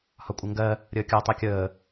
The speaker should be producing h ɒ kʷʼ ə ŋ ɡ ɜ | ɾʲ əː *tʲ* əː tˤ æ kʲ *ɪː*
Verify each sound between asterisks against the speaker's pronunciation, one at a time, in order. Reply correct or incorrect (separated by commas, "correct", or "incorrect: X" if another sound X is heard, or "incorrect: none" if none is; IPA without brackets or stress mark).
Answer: incorrect: kʲ, incorrect: əː